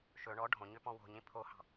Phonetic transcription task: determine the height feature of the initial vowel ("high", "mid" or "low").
mid